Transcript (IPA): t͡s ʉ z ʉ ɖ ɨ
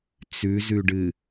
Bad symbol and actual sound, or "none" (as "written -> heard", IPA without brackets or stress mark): none